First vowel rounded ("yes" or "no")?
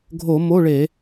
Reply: yes